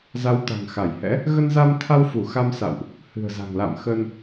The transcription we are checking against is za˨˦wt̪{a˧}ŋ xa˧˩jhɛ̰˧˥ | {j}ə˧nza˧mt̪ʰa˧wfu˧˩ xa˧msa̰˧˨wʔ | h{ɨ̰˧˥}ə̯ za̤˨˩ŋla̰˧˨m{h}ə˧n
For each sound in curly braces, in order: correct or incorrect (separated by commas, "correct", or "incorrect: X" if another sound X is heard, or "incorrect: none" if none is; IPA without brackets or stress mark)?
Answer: incorrect: a̤˨˩, incorrect: ɣ, incorrect: ɨ̤˨˩, incorrect: x